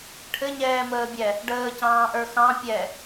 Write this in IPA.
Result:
ʈʰ ɘ ɲ ɛː m əː bʲ ɛ | ɖ əː c ɑ̃ː ʔ ə˞ x ɑ̃ pʲ ɛ

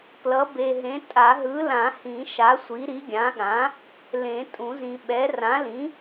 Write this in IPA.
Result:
p l ʌ˩˥ b e˨ ɦ ẽ˩˥ tʼ a˨˩˦ ɦ ɯ˩˥ l ã˨˩˦ h ĩ˨˩˦ ʃ a˩˥ sʷ i˩˥ ɾ i˩˥ ɡʲ ã˩˥ ɠ ã˩˥ | l ẽ˨˩˦ tʼ ũ˨˩˦ z ĩ˨ ɓ ɛ˩˥ r ã˩˥ l ĩ˩˥

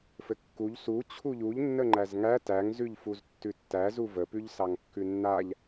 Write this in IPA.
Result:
f ɘ kː u ʎ s u t͡ɕʰ u ʎ u ʎ nː ə ŋ͡ǃ æ z ŋ æ t æ ŋ z ʉ ʎ f u z tː ʉ tː æ z u v ə p ʉ ʎ s ɑ ŋ kː ʉ nː a ʎ

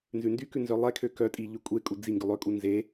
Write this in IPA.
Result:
n z ʉ n d y k ʉ n z œ lˠ ɛ kʰ ø k œ tʼ i ʎ ʉ kʷʼ e kʼ u d͡z i ŋ ɡ ʉ lˠ ø kʼ u n z e

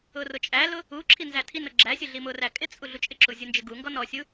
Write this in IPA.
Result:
ʊ r ʊ t͡ʃʼ æ l ʊ | u ǁʰ i n z æ tʰ i n ʊ ɡ͡ǁ æ sʲ ʊ ɮ i m ʊ r æ kʼ ɪ t͡sʼ u ɮ u t͡ʃʼ ɪ ǁ u zʲ u n d͡ʒ ɪ ɡ u ŋ ɡ ɔ n ɔ sʲ u

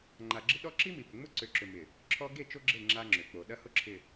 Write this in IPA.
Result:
ŋ͡ǃ a˨ ɡ͡ǁ ɪ˦ ɗ ɔ˦ ǁ i˦ m i˨ p ʏ˨ ŋ͡m ʊ˦ ǀ ʏ˨ ǁ ʏ˨ m ɪ˨ | ǁʰ ɔ˦ ɡ e˦˨ t͡ʃ o˦ ɡ͡ǁ e˦˨ ŋ͡ǁ a˦ ŋ͡ǁ ʏ˨ k͡p o˨ ɗ ɐ˦ h ʊ˦ ǁʰ ɪ˨

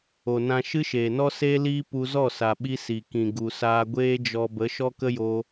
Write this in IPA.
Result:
o˨ n ã˧ ʃ ɨ˦ ʃ eː˨ n ɔ˦ s eː˦ l iː˦ p u˧ z ɔ˦˨ s a˨ ɓ i˧ s i˨ k ĩ˨ ɡ u˨ s aː˧ ɡʷ eː˦ d͡ʒ ɔ˧ b ə˨˦ ʃ ɔ˦ k ə˦ j o˧

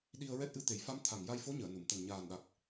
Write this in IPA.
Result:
ɗ i˧ ə̯ ɹ ɛ˦˥ t̚ ʔ ɨ˧ t̪ e˨˩˦ j f a˧˥ m t̪ʰ a˨˩ ŋ j a˧ j f o˧˥ ɲ əː˨˩˨ n u˨˩˨ m t̪ ə˨˩ ŋ ɲ aː˨˩ n ɗ a˨˩ k̚

